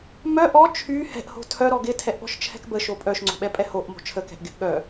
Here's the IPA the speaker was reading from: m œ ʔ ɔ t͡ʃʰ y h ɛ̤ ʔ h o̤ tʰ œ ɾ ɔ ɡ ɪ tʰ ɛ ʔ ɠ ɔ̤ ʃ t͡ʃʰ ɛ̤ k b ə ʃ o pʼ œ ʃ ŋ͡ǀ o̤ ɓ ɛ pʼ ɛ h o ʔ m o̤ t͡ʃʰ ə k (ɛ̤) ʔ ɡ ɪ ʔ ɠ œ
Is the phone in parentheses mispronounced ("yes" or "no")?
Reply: no